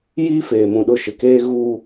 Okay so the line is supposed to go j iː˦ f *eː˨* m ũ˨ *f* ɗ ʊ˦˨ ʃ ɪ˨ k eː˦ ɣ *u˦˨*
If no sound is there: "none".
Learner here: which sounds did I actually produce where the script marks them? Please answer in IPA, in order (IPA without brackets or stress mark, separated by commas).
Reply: eː˨, none, u˦